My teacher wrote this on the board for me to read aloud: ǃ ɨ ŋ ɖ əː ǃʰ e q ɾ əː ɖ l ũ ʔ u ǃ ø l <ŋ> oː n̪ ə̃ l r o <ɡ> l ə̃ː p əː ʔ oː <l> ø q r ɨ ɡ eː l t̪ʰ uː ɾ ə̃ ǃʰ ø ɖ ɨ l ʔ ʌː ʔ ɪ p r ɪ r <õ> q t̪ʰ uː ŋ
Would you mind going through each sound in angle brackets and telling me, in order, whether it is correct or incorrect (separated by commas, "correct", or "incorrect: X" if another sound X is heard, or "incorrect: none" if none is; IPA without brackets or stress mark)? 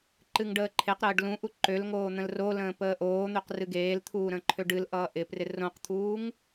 correct, incorrect: none, incorrect: n̪, correct